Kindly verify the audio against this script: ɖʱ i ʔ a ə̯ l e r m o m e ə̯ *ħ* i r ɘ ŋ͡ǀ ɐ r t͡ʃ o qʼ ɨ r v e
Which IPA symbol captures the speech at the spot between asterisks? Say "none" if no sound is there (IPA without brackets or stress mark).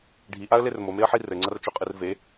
ħ